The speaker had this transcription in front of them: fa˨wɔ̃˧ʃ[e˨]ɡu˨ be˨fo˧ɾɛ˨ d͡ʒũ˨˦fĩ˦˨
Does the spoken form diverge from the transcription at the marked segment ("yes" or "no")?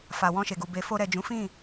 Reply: no